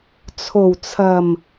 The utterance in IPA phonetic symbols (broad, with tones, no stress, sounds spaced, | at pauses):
t͡sʰ o˨˩ w t͡sʰ ɐ˨˩ m